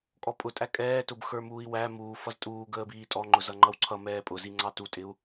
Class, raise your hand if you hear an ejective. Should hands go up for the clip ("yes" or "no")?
yes